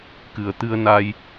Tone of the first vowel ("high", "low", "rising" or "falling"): low